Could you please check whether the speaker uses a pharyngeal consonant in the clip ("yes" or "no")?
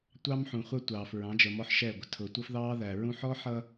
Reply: yes